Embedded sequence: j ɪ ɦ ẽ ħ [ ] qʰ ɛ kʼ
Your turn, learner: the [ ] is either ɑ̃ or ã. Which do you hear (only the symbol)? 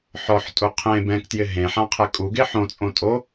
ã